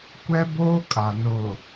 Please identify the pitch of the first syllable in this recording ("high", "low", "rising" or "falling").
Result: high